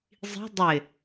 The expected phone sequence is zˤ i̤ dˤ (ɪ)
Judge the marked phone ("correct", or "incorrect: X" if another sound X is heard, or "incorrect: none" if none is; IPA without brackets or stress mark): correct